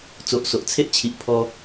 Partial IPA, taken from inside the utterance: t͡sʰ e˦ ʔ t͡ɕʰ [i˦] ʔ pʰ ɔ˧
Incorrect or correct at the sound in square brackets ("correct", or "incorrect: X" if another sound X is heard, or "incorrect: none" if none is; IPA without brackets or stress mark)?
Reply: incorrect: i˨